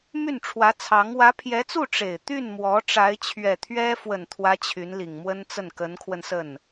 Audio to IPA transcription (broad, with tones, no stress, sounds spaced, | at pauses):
m y˥˩ n ʈ͡ʂʰ w ä˧˥ t͡sʰ ɑ˧˥ ŋ w ä˧˥ pʰ j ɛ˧˥ t͡s u˥˩ ʈ͡ʂ e˨˩ ɪ̯ t̪ y˥˩ n m w ɔ˧˥ ʈ͡ʂ a˧˥ ɪ̯ t͡ɕʰ ɥ ɛ˨˩ t̪ʰ ɥ ɛ˥ f w ə˨˩ n t̪ʰ w ä˧˥ t͡ɕʰ y˧˥ n l i˨˩ ŋ m w ə˥ n t͡s ə˥˩ n k ə˧˥ n kʰ w ə˧ n s ə˥˩ n